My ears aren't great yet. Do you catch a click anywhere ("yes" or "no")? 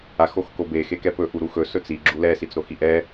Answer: yes